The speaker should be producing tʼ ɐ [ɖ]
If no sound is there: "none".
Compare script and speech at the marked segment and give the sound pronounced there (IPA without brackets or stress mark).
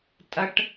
ʈ